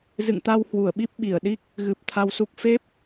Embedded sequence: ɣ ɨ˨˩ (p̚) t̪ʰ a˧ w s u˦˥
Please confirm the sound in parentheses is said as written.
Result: yes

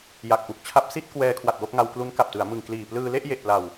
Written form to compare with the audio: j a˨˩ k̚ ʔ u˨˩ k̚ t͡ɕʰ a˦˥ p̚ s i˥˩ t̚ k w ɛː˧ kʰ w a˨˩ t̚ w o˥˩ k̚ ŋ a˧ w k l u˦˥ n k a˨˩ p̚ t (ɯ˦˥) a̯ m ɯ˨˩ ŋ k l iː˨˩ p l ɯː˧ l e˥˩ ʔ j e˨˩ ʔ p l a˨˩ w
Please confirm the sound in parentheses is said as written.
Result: no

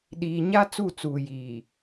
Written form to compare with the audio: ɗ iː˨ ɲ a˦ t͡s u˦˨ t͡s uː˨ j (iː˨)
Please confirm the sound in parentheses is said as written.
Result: yes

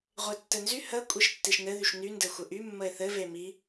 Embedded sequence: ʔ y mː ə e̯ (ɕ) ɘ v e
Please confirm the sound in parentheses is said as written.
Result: no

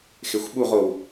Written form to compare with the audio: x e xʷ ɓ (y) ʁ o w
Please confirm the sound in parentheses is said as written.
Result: no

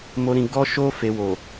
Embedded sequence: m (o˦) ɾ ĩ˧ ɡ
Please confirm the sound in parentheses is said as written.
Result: yes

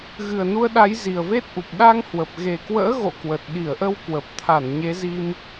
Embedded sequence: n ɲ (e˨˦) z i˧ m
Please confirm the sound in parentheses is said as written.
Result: yes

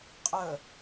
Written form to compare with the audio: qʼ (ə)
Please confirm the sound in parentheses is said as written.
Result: yes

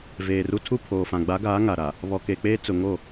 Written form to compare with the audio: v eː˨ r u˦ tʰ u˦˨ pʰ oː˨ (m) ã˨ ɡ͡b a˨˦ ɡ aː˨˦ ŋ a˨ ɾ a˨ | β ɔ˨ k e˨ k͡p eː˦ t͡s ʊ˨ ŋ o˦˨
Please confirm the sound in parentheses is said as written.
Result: no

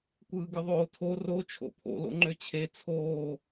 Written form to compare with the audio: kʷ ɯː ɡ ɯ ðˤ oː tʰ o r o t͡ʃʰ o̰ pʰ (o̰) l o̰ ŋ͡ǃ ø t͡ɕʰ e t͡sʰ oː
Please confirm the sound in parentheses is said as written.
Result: yes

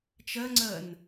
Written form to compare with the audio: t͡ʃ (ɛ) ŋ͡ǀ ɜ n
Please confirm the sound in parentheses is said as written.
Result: no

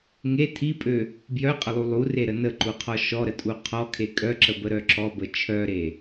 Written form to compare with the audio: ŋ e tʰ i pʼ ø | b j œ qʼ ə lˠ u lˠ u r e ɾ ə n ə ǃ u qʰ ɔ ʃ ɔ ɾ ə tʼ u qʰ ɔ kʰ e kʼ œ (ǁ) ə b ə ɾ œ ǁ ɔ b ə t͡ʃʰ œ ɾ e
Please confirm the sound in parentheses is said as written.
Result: yes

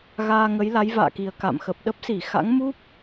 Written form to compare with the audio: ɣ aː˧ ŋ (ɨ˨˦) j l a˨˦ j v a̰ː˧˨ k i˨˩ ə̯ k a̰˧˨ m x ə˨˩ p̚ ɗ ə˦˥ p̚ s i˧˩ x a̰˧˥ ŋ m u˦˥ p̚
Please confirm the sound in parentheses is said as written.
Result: no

